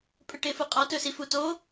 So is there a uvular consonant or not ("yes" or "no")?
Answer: yes